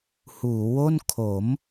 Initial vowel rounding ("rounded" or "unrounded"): rounded